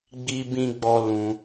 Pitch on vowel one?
high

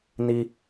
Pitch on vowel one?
low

